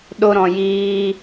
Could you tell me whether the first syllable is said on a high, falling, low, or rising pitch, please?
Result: high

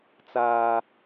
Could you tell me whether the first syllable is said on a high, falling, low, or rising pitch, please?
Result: low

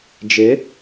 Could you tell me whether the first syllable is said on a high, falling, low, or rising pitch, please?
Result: rising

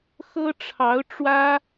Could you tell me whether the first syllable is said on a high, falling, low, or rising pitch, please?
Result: high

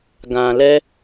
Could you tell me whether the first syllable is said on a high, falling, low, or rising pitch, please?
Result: low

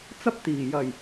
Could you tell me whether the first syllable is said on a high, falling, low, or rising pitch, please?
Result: high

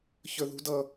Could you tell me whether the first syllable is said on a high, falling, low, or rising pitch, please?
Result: high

